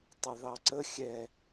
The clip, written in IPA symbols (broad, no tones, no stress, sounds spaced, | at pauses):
tˤ ə ð ɑ ǀ ə xʲ ɛ